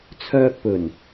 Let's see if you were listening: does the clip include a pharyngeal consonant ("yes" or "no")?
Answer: no